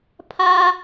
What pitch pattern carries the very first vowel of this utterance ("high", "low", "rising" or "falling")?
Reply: high